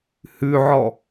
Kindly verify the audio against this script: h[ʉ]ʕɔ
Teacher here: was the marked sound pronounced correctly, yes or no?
yes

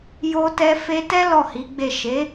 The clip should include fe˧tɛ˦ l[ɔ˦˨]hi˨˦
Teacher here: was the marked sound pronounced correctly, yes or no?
yes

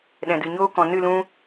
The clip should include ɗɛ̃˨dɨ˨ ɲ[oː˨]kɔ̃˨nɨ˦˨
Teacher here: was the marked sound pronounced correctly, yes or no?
no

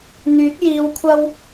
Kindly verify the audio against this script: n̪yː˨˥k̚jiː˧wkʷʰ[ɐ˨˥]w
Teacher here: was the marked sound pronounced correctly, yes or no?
no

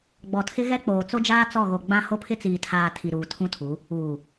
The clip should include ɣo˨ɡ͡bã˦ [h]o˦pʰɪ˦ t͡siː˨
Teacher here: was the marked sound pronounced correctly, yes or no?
yes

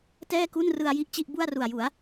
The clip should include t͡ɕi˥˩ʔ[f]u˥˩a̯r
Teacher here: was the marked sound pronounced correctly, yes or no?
no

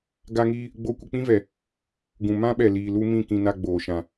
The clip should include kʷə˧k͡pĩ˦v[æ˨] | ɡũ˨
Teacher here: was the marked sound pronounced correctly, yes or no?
no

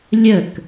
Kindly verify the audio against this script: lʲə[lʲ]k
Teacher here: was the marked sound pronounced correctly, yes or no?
no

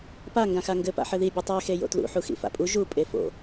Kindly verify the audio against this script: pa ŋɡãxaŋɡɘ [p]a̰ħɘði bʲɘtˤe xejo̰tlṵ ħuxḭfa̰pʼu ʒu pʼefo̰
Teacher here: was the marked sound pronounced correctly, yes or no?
yes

